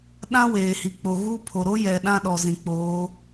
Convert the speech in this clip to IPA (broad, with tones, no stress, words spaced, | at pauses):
ɗã˦weː˨hi˨k͡po˨ ɣu˦ pʰo˨ɾo˦jɛ˨ ɗã˦ɗɔ˨ zĩ˨k͡poː˨˦